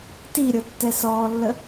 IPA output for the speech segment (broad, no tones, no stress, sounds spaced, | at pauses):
t i ɾʲ ɤ tː ɛ s ɔː lː ə